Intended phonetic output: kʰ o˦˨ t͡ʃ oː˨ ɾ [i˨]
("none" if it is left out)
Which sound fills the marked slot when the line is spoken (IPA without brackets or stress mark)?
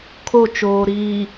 iː˨